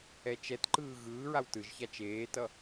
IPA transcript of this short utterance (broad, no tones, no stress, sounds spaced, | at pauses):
ɛ t͡ʃ ɛ t ǃ ɯː ɣ ɯː ɹ a w t ɯ ʒ ç a t͡ʃ eː t ʌ